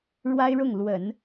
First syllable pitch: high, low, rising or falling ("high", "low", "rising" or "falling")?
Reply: high